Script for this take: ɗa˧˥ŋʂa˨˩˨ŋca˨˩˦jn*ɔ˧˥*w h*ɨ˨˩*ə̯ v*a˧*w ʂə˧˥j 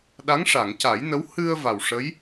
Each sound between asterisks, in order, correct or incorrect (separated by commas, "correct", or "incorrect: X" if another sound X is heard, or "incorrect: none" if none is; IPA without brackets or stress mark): incorrect: ə˧˥, incorrect: ɨ˧, incorrect: a˨˩